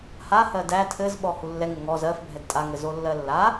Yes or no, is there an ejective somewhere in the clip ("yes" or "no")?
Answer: yes